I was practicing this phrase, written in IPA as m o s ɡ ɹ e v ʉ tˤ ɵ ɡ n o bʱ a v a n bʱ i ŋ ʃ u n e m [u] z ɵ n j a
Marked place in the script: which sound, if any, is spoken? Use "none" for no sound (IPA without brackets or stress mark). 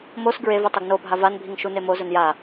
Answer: o